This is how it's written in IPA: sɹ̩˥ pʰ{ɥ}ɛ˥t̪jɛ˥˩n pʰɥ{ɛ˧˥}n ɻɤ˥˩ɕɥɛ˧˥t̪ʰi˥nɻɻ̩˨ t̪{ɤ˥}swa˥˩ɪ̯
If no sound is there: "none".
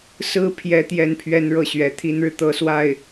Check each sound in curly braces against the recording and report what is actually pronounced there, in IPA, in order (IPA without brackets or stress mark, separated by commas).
j, ɛ˥, ɤ˥